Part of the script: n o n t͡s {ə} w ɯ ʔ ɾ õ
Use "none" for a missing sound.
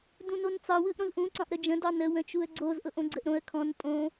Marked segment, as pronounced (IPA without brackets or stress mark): ɑ